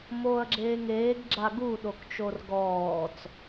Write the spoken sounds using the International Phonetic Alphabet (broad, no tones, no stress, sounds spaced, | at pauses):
m oː ɐ̯ ɡ͡ǁ eː ŋ eː ɡ ɡ͡ǁ a ɡ u ɗ o k t͡ʃ o r ɡ ɔː t͡s